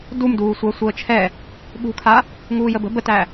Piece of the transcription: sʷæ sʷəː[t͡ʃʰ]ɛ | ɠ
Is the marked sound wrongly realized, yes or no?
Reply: no